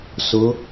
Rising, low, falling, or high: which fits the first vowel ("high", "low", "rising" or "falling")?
rising